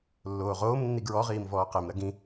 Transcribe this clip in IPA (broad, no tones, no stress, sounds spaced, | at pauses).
lː oː ʁ oː m nː i ɡ ɹ ɔ ʁ iː m v ɔː q e m ɾ ɐ ɡ ĩ